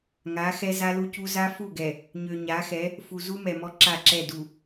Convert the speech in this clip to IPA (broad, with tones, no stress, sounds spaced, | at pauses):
ŋ a˨˦ x ɛ˦ z a˦ l u˦ c u˦ z a˦ f u˦˨ ɡ ɛ˨ | ɲ ø˨ ɲ a˨˦ x ɛ˨˦ | f u˨ z u˦ m ɛ˨ m ɔ˦ ǁ a˦˨ ǁ ɛ˦˨ d u˨